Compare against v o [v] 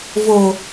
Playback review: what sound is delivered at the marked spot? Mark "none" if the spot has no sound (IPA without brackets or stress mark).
none